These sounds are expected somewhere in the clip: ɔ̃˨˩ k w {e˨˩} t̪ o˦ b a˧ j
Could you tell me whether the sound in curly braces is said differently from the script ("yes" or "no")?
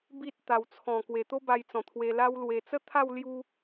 no